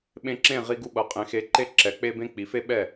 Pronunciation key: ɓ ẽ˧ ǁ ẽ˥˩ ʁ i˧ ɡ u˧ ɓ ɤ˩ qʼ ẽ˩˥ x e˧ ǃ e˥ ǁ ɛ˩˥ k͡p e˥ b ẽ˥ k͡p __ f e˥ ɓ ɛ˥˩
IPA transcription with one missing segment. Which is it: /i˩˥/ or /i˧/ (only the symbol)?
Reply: i˩˥